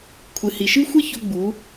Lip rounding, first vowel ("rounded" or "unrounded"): unrounded